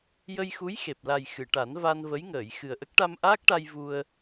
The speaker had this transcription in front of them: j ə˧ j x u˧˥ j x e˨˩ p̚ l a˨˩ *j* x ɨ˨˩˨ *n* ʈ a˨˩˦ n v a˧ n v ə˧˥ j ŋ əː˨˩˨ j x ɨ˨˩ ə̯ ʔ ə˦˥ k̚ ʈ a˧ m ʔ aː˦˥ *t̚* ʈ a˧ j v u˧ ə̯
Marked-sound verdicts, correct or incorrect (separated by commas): correct, incorrect, incorrect